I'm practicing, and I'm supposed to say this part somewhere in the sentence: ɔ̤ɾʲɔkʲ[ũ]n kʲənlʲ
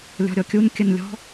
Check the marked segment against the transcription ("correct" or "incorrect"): incorrect